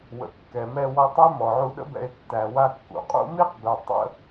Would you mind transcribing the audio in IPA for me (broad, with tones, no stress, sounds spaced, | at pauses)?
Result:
w ə̰˨ kː ɛ˨ m ɛ˧ w ɔ˧ tˤ ɛ˦ m ɔ˨ ʕ u˧ ɗ ə̰˦ b ɛ̰˧ e̯ tː æ˨ w a˧ kː ṵ˨ qʼ ṵ˦ m i˦ q b ɛ˨ tˤ ə̰˦